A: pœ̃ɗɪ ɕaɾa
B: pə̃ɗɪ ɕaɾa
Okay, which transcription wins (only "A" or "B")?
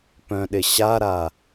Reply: A